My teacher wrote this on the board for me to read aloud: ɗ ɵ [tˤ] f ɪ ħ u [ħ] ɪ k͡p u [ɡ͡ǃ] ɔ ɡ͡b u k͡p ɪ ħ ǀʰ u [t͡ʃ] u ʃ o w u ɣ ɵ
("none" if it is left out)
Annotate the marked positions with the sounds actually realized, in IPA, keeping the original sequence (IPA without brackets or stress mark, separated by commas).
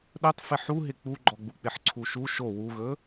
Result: tˤ, ɦ, ɡ͡ǃ, ʃ